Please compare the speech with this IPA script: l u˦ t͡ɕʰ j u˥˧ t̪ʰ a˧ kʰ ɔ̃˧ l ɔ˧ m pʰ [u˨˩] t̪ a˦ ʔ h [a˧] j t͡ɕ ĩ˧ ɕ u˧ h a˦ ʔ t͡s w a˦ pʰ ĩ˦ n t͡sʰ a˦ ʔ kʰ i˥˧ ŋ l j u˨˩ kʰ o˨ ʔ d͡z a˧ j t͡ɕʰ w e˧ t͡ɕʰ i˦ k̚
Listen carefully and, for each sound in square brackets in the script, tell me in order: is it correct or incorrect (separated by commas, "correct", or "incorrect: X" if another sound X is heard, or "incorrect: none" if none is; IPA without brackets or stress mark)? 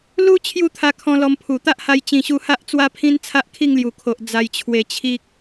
correct, correct